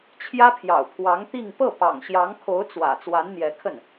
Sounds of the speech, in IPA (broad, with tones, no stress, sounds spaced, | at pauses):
t͡ɕʰ j ä˥ pʰ j ɑ̰˨˩ ʊ̯ pʰ w ɑ˧˥ ŋ t̪ i˥˧ ŋ p ɤ˥˩ p ɑ̰˨˩ ŋ ɕ j ɑ˧˥ ŋ kʰ o˧˥ ʊ̯ t͡s w ä̰˨˩ t͡s w a˧˥ n n̪ j ɛ˧˥ kʰ ə˥˩ n